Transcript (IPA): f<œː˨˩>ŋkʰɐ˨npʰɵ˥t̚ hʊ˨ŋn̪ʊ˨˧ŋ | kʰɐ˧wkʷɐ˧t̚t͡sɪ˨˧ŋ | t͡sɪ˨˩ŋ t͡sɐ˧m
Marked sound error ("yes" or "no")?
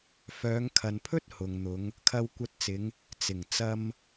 yes